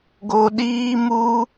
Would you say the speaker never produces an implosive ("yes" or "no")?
no